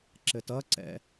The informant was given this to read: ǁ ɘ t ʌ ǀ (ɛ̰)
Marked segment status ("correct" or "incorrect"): correct